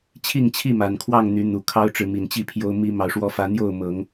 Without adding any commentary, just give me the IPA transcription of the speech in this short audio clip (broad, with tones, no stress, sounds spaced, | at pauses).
t͡ɕʰ i˥˨ ŋ t͡ɕʰ i˥˨ m a˨˩ n kʰ w ɑ˥˨ ŋ n̪ y˨˦ n̪ u˨˩ kʰ ɑ˦ ʊ̯ ʈ͡ʂ ɻ̩˨˦ m i˨˩ n t͡ɕ i˥˨ pʰ j o˦ ʊ̯ m i˦ m ɑ˨ ʊ̯ ʂ w ɔ˦ f ä˨˦ n̪ j o˥˨ ʊ̯ m ɤ˨˦ ŋ